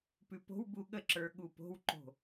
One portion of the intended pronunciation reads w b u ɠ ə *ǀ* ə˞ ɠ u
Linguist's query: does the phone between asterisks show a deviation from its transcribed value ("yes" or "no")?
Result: yes